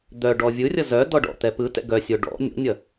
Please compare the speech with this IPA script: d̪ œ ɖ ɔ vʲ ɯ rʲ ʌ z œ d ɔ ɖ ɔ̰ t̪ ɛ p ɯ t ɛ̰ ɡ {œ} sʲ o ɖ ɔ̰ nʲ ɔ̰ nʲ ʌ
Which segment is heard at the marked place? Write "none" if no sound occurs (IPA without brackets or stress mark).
œ